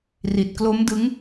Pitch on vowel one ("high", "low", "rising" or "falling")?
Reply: low